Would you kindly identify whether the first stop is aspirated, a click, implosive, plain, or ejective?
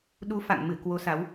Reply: implosive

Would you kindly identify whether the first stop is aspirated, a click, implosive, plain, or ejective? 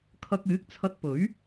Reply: aspirated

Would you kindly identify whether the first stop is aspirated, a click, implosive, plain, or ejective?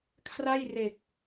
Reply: aspirated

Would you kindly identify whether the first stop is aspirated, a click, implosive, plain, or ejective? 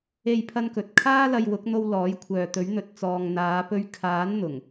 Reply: aspirated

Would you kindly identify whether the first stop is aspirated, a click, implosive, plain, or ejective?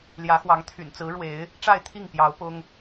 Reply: aspirated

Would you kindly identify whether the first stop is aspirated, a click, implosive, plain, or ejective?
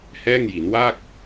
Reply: plain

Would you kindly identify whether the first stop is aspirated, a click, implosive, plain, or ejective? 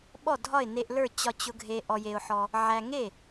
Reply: implosive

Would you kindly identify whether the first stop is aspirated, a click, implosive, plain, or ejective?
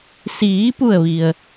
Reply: plain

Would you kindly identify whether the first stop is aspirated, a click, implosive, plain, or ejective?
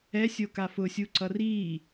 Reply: plain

